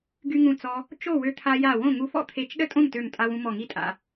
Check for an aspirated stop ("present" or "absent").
present